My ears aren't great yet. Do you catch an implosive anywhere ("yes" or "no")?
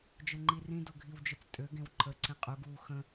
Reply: no